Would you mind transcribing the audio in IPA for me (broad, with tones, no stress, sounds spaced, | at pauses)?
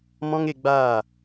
m ɔ̃˦ ŋ e˧ ɡ͡b aː˦˨